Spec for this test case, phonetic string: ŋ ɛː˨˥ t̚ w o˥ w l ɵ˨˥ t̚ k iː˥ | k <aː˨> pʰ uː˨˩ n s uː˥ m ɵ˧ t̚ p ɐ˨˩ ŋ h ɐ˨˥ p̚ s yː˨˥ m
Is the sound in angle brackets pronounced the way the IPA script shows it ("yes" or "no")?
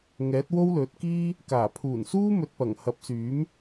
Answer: no